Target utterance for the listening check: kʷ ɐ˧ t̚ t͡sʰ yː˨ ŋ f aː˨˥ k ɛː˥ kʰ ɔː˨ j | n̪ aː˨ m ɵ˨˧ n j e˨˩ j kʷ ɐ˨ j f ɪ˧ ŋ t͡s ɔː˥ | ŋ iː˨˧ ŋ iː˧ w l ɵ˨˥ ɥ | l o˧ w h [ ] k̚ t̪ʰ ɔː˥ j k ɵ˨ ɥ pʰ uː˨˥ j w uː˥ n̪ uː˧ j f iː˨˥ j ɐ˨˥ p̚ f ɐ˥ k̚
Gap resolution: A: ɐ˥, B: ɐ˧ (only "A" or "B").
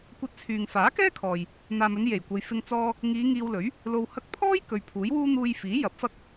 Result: A